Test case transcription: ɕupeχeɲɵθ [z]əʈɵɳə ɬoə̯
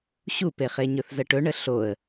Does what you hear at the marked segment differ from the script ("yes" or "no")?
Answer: no